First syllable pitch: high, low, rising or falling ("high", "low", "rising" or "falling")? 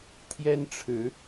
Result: high